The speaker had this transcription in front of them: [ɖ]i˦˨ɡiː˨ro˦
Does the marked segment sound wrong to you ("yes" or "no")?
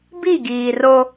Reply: yes